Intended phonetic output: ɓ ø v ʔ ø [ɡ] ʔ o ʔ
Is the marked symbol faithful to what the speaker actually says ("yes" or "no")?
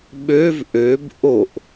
no